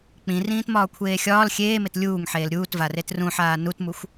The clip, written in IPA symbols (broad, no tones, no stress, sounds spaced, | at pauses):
k͡p ĩ r ĩː t m ɒː kʷʰ eː xʲ ɒː l xʲ eː m e t lʲ uː ŋ ħ eː l ɾʲ uː t v a r e t r ũ ħ aː n u t m u xʷ